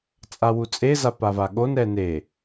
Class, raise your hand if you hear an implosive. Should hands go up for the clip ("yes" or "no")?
yes